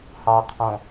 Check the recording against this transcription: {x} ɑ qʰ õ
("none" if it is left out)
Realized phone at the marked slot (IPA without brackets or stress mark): h